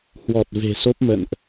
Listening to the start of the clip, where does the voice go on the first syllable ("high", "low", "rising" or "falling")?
low